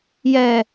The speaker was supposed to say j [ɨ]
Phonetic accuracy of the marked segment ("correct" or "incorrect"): incorrect